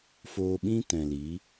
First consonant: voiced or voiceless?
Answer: voiceless